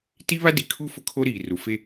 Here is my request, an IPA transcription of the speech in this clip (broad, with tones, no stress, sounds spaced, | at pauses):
t i˦ β a˦ d i˨ kʰ u˦ f ʊ˦ kʰ o˦ ɾ iː˨ r u˨ f e˦